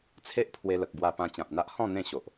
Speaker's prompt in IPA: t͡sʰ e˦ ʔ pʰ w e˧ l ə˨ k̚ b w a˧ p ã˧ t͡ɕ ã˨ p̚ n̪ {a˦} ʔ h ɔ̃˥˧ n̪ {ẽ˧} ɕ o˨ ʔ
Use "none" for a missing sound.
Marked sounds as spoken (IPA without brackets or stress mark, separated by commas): a˦, ẽ˥˧